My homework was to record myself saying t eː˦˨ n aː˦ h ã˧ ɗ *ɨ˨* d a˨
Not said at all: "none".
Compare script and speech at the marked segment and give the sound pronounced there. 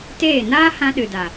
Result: ɨ˨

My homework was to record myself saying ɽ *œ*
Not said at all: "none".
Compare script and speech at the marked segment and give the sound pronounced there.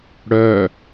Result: œ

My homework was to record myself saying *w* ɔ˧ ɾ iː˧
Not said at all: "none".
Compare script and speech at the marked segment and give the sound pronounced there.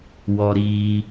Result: w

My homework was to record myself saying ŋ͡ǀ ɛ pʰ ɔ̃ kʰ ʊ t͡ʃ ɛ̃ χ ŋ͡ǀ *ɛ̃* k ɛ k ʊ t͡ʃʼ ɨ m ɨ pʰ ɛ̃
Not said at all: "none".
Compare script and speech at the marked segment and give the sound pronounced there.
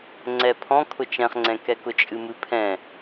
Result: ɛ̃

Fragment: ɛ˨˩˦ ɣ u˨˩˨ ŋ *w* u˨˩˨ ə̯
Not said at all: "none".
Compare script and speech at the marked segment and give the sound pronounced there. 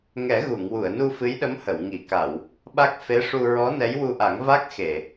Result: w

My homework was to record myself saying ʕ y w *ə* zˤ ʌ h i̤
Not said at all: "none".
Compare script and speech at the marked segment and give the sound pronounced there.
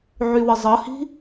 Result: ə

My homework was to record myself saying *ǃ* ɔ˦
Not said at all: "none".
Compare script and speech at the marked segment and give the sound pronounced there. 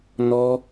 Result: n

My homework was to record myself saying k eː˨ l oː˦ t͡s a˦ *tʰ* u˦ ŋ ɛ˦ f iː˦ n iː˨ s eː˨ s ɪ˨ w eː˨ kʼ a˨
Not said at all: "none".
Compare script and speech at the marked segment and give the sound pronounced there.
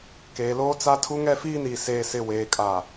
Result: tʰ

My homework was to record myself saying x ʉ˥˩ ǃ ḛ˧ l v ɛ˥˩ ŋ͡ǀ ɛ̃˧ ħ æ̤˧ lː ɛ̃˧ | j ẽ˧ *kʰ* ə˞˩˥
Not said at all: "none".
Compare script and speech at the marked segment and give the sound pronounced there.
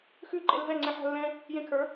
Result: kʰ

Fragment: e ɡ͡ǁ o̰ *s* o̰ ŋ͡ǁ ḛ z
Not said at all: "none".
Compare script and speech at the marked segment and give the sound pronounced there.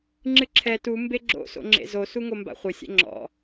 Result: s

